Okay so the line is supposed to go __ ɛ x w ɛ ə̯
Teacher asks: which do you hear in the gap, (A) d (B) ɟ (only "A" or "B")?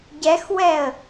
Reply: B